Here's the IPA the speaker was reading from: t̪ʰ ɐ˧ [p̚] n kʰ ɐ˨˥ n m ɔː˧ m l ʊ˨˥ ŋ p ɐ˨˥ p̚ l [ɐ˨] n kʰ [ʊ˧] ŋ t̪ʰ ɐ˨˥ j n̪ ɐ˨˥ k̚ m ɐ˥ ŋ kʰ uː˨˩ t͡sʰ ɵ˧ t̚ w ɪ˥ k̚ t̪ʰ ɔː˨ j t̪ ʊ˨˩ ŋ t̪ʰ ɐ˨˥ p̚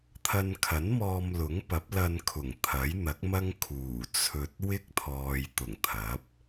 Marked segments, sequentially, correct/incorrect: incorrect: none, incorrect: ɐ˧, incorrect: ʊ˨˩

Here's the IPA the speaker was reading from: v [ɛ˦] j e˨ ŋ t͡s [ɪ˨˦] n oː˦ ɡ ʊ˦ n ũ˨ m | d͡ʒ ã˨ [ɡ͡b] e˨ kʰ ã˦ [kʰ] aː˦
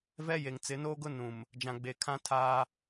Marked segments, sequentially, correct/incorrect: correct, correct, correct, incorrect: tʰ

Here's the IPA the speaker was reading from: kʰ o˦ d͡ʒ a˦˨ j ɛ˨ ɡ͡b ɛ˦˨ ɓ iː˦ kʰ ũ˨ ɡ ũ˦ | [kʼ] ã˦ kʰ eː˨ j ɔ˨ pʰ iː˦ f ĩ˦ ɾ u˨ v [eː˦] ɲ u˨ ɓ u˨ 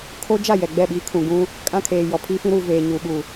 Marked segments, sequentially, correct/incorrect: correct, incorrect: eː˨

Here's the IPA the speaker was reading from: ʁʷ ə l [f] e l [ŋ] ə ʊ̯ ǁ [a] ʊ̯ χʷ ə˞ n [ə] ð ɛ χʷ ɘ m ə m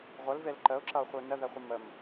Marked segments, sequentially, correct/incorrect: incorrect: v, incorrect: ǃ, incorrect: ʌ, correct

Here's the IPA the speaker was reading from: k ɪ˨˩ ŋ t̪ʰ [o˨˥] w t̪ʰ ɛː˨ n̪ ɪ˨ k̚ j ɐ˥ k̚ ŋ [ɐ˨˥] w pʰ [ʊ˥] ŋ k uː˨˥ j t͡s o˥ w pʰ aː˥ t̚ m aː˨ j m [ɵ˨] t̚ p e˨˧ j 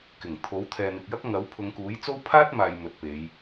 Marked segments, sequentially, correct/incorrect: correct, correct, incorrect: ʊ˨˧, correct

